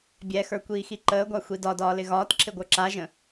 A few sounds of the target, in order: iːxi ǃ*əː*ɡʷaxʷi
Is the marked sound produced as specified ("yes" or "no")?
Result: yes